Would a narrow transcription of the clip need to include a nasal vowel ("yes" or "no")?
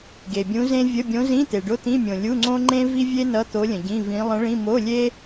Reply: yes